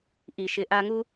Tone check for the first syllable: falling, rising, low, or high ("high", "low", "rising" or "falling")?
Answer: low